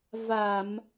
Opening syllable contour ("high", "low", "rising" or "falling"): low